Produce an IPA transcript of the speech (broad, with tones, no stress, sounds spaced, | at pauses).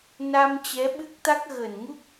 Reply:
n a˧ m t͡ɕ ɛ˨˦ ɓ ɨ˦˥ k̚ t̪ a˦˥ k̚ ɣ əː˧˩ n ŋ u˦˥ k̚